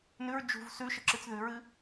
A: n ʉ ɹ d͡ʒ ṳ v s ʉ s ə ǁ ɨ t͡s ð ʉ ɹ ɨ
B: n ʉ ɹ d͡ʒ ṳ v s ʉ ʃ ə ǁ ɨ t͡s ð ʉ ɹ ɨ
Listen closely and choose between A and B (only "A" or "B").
B